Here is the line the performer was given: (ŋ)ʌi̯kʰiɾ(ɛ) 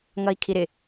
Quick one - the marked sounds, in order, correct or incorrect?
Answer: correct, incorrect: ɪ

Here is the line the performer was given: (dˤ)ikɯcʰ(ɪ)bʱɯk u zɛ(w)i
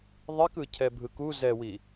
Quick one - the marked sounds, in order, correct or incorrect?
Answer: incorrect: ðˤ, incorrect: ɛ, correct

